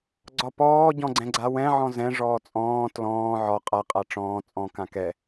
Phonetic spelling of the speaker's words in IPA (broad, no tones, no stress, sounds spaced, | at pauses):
ɡ͡ǀ ɒ p ɔː ɟ ɔ̃ ɡ͡ǀ ɛ̃ ɡ͡ǀ a w ɛ̃ ʕ ɔ̃ z ɛ̃ ʐ ɔː t͡sʼ ɔ̃ː t l ɔ̃ː ʕ ɒ qʼ a qʼ a ʈ͡ʂ ɔ̃ː t͡sʼ ɔ̃ k ã k ɛ